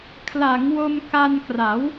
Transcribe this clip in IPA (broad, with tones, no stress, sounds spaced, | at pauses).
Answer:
kʰ l a˩˦ ŋ w o˧ m k a˧ n k r a˩˦ w